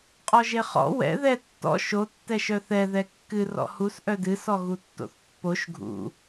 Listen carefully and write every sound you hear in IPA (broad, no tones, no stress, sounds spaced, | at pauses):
qʼ ɔ ʒ e χ ɔ̰ w ɛ̰ ð ɛ tː ɔ̰ ʃ o tː ɛ ʃ œ θ ɛ ð ɛ kː ɨ r ɔ̰ h u s ʔ œ d ɨ s ɔ ɣ u tː o̰ θ pː o ʃ ɡʱ ṵ